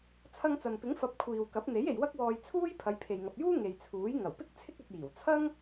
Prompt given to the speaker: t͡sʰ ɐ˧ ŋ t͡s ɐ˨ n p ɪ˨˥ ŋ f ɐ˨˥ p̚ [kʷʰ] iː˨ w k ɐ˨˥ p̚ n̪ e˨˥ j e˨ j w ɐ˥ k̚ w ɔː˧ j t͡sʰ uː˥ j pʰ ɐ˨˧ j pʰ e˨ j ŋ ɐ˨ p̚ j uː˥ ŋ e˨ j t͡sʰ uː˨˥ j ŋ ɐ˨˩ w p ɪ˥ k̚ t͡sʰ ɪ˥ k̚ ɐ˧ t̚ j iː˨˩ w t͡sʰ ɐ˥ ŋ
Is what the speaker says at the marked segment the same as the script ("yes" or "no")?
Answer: yes